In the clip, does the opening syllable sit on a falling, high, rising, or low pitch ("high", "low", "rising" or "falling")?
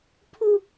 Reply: high